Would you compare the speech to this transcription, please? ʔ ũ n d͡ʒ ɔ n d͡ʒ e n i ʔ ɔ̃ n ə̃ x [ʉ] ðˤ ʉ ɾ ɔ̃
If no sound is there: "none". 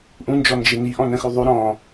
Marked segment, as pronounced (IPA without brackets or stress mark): ʉ